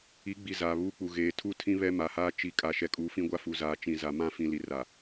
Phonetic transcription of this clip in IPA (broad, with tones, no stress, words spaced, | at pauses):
i˨˦ɡ͡bi˨ zaː˨βuː˦k͡pu˨ ɣeː˨tʰu˦tʰĩ˦ βɛ˦ma˨haː˦ t͡ʃi˨˦ kʼa˨ʃɛ˨kʼuː˨ fĩ˦ɡʷa˦ fu˨zaː˨ t͡ʃĩ˨za˨mã˦fĩ˨ li˨ra˨